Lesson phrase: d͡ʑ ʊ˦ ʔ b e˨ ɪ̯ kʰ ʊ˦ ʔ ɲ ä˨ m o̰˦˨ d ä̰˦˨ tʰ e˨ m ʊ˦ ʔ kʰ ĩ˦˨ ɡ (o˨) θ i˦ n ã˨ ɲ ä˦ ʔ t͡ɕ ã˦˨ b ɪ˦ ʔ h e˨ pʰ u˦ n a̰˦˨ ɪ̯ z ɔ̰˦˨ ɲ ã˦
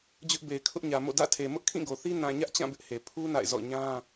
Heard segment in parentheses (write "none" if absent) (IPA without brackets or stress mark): o˨